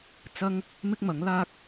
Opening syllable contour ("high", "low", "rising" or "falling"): high